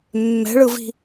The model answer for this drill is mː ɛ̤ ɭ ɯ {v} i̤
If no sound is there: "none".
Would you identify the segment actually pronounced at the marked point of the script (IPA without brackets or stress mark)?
v